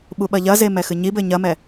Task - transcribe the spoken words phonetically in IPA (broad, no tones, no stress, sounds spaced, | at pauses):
ɓ u ɓ ɐ ʎ ɐ z e m ɛ x ɨ ɲ i b ɘ ɲ ɐ m ɛ